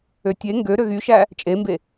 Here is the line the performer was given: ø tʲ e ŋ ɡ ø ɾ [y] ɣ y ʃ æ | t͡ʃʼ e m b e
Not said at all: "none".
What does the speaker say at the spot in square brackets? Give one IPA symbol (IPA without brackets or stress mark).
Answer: ø